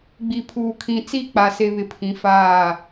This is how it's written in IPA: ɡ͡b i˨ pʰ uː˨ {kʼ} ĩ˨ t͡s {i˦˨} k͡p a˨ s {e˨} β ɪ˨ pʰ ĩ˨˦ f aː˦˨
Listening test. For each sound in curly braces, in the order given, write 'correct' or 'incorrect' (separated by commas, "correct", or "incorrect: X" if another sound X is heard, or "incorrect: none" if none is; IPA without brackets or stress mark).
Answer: incorrect: kʰ, correct, correct